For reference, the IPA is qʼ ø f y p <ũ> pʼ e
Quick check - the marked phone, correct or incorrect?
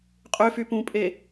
correct